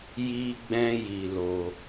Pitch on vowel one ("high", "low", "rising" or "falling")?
high